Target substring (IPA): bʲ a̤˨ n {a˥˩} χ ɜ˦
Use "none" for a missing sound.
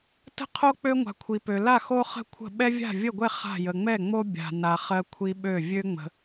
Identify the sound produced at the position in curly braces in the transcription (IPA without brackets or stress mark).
a˨